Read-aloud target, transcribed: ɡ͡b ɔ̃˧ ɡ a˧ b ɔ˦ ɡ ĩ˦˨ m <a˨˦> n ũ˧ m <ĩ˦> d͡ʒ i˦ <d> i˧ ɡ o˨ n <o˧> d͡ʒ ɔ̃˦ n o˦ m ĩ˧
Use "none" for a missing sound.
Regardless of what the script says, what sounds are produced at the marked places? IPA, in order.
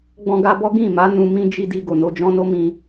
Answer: a˨˦, ĩ˦, d, o˧

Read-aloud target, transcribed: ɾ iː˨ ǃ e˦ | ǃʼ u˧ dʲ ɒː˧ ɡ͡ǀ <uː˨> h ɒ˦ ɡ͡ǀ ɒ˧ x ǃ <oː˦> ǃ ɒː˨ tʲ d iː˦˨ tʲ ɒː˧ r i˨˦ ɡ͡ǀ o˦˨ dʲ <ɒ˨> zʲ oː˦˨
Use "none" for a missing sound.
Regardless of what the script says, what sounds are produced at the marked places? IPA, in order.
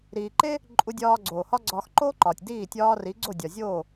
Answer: oː˨, oː˦, ɒ˨

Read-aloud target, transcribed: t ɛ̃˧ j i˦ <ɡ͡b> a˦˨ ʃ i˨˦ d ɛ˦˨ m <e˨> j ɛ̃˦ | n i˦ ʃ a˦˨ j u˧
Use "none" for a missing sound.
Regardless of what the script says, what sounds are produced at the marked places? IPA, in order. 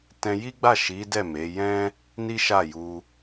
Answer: ɡ͡b, e˨˦

